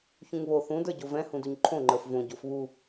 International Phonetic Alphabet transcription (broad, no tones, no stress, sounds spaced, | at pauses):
ç ũ ŋ β o θ ũ d ə˞ ɟ o v ɛ̃ h ũ d u ɲ ǃʰ õ ŋ͡ǃ ə˞ f v õ ɟ o f β u